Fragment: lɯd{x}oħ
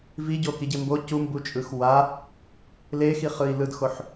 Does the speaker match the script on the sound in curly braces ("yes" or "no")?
yes